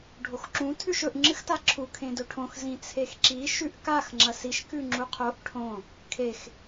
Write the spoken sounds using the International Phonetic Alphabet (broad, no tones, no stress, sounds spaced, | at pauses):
ɖʱ o x ǁ ũ tʰ ʉ ʃ ɵ ʔ ŋ͡ǁ ɨ x t a ǁʰ u kʰ ẽ d ɵ ʈʰ õ x z ĩ t͡sʰ e x ǁ i ʃ ʉ ʔ k a x ŋ͡ǁ ɐ s i ʃ k ʉ ŋ͡ǁ u qʰ o ʔ ʈʰ õ | kʰ e x